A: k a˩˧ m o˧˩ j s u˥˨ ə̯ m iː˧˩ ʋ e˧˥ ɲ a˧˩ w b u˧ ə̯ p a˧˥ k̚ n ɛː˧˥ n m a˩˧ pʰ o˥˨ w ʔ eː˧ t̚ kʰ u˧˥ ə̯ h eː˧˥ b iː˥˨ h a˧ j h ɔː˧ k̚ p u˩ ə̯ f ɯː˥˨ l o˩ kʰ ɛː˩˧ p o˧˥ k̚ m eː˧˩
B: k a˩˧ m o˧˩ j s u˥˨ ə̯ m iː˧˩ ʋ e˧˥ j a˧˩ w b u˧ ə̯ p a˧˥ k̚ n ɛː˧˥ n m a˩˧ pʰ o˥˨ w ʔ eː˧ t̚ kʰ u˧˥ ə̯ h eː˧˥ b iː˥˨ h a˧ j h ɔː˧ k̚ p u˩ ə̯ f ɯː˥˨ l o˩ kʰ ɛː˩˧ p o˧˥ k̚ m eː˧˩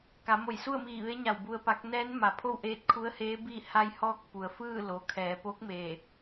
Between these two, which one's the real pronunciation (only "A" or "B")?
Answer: A